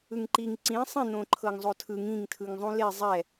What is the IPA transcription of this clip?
ɯ ŋ ǃ i ŋ ǀ ĩ sˤ ĩ n̪ õ ǃʰ ɤ ŋ zˤ o tʰ ɯ ŋ ĩ ŋ tʰ ɯ ŋ zˤ ũ l e zˤ ɛ

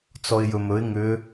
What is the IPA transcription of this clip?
t͡s ɔ ɪ̯ j ɵ m ɵ ɪ̯ ŋ ʏ

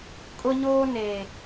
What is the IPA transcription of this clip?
kʼ ʊ˦ ɲ oː˦ n e˨

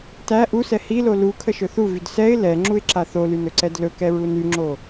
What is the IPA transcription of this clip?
t æ ʔ u s ɛ h i l o l u kʰ ə ʃ ɵ θ u v y d s ɛ ɪ̯ l ɛ ŋ͡ǁ u ɪ̯ ǁ a θ o l y n ɵ ǀ ɛ d l ɵ k ɛ ɹ u n y ŋ͡ǁ o

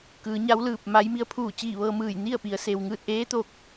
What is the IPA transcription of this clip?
k ɯː˩˧ ɲ a˧˥ w l ɯː˧˩ p̚ m a˧˥ j m i˧ ə̯ pʰ uː˧˩ t͡ɕ iː˧˩ ʋ ɤː˧ m ɯː˧˩ j n i˥˨ ə̯ p i˩˧ ə̯ s e˩ w ŋ ɯː˧˩ t̚ ʔ eː˧˥ t̪ o˥˨ k̚

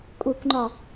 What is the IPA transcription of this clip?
kʷʼ i kʷ ŋ͡ǃ ɒ

